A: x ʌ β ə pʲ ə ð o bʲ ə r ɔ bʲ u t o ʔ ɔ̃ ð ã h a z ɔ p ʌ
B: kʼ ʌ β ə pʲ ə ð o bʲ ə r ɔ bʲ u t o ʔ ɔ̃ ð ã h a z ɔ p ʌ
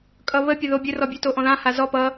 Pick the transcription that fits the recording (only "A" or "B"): B